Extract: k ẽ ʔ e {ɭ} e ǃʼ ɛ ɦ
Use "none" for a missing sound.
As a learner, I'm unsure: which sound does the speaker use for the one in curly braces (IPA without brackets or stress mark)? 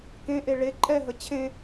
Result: ɭ